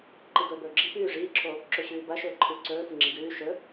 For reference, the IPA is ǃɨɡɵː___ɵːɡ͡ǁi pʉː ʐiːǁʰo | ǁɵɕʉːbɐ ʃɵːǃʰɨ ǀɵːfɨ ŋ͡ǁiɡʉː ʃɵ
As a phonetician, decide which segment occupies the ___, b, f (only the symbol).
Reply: b